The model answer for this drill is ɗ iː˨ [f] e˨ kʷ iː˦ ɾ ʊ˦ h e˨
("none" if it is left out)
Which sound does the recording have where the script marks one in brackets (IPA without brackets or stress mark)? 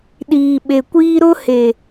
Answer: ɓ